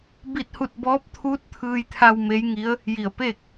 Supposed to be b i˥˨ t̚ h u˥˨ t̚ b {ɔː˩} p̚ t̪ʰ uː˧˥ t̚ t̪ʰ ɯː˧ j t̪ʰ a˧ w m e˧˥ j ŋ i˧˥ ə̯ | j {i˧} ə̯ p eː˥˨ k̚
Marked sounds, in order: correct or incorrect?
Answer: incorrect: ɔː˧˥, incorrect: i˧˩

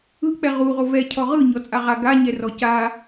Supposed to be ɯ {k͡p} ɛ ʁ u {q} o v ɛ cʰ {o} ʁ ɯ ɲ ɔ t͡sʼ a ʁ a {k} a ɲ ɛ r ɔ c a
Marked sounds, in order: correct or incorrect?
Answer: correct, incorrect: ʁ, incorrect: ɔ, incorrect: ɡ

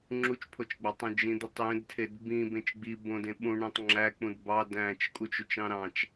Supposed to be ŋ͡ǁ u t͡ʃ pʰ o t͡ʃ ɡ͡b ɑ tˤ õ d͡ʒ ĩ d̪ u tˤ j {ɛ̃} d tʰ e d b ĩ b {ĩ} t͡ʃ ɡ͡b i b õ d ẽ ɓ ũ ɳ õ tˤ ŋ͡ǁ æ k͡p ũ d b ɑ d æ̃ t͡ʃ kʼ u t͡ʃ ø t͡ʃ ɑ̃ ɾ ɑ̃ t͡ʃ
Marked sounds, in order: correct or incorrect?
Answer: incorrect: ẽ, incorrect: ẽ

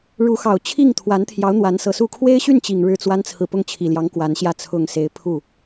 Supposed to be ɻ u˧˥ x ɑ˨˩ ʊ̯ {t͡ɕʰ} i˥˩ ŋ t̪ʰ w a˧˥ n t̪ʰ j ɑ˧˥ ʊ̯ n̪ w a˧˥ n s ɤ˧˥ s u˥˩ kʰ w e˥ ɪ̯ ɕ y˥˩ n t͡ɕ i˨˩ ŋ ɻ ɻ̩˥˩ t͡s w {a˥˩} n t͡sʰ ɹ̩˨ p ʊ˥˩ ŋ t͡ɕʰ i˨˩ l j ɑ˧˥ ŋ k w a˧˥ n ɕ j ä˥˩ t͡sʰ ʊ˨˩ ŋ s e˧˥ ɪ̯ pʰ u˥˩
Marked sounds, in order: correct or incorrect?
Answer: correct, incorrect: a˥

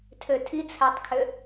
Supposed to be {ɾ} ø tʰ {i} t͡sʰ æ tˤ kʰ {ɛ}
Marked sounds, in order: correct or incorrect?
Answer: incorrect: tʰ, correct, incorrect: ø

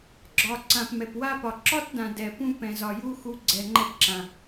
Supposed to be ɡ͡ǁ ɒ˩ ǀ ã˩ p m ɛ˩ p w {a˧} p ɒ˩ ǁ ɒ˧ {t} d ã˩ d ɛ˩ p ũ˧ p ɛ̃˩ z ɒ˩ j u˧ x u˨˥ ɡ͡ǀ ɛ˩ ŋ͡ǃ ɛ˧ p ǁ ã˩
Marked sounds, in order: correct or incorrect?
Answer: correct, correct

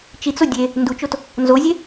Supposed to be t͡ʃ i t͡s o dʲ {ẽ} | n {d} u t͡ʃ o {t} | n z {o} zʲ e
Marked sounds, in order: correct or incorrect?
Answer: incorrect: e, correct, correct, correct

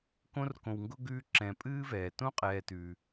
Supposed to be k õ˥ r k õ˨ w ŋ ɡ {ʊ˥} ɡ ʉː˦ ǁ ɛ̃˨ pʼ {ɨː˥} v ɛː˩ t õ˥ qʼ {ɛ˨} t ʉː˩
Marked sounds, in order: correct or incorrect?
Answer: correct, correct, incorrect: ɛː˨

